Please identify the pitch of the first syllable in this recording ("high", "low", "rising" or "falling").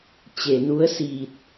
low